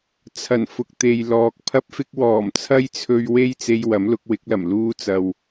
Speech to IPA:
t͡sʰ ɐ˨˩ n f ʊ˨ k̚ t̪ e˨ j l ɔː˨ k̚ pʰ ɐ˥ p̚ f ɪ˥ k̚ w ɔː˨˩ m t͡sʰ ɐ˥ j t͡sʰ ɵ˧ ɥ w e˥ j t͡s e˧ j w ɐ˨˥ m l ʊ˨˥ k̚ w ɪ˨˥ k̚ l ɐ˨˩ m l uː˧ t͡s ɐ˨ w

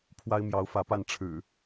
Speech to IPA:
pʰ w a˦ ɪ̯ m j ɑ˨˦ ʊ̯ f ä˨˦ p a˥˨ n ʈ͡ʂʰ ɻ̩˨˩

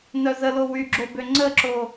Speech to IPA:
n œ z ə l o w y ɡ͡ǁ o b ø ŋ͡ǀ ə ǁ o

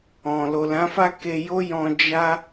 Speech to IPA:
ɔ̃˨ l o˨ l ã˨˦ f a˦ k e˧ j o˦ j ɔ̃˧ d͡ʒ a˦

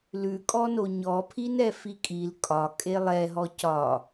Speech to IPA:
l ʉ kʼ ɔ n o ɲ ɔ pʰ i n ɛ f i kʼ i l kʼ ɒ kʼ e lˠ ɛ ɦ ɔ c ɒ

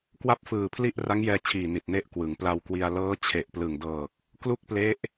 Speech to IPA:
k w a˥˩ p̚ f ɯː˨˩ pʰ l i˥˩ ʔ r a˦˥ ŋ j ɛː˧ t͡ɕʰ iː˨˩ n i˨˩ t̚ n e˦˥ ʔ k w ɯ˩˦ ŋ p l a˧ w k w i˧ a̯ l ɤː˦˥ t͡ɕʰ e˨˩ ʔ p l ɯ˨˩ ŋ d ɤː˨˩ k̚ | k l u˥˩ k̚ p l e˦˥ ʔ

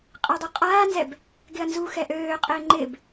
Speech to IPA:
qʼ ɪː dˤ u qʼ aː n z ɛ b | ɡ ɪ ɐ̯ n z u x ɛ ʔ øː qʼ ɪː ŋ͡ǃ ɪ b

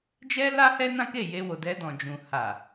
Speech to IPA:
d͡ʒ ɛ˦ l a˦ h ɛ˦ n ã˦ k e˦˨ j e˧ w o˨ d ɛ˧ d ɔ̃˨ d͡ʒ ũ˨ h a˨

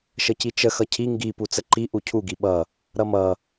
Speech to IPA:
ʃ ə c i t͡ʃ ə x ʌ cʰ i ŋ ɡ i p u t͡s ə ǃ i ʔ u cʰ u ɡ i ɓ ʌ | ɾ ʌ m ʌ

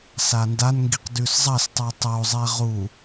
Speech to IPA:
s a n d a n ŋ ɡ i q d ʉ s zˤ ɐ s tˤ ʉ tˤ o zˤ e ʁ u

